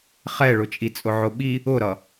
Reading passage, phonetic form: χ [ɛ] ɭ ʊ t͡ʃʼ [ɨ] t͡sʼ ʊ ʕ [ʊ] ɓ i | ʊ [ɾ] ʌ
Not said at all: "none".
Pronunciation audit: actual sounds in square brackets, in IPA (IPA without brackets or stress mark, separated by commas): ɛ, i, ʊ, ɾ